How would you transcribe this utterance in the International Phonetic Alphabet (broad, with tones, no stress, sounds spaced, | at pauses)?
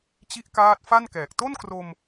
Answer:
t͡ɕ i˦˥ ʔ k aː˦˥ t̚ f a˥˩ n k ɛː˨˩ k̚ t o˥˩ n k r o˧ m